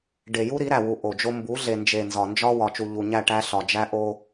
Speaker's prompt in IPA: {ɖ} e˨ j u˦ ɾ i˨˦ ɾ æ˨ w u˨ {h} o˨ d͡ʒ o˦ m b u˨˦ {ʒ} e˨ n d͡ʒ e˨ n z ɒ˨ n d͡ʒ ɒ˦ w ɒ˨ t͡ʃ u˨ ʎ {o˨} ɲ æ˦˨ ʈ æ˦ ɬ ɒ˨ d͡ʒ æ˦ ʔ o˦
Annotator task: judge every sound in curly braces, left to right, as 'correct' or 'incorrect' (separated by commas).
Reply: correct, incorrect, incorrect, incorrect